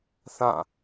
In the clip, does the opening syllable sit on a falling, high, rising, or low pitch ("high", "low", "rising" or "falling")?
falling